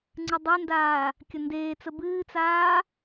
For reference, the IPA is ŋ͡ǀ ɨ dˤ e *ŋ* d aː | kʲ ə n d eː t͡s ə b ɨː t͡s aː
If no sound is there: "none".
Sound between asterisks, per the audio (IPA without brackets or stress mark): n